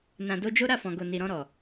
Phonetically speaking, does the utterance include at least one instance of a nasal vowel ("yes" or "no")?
yes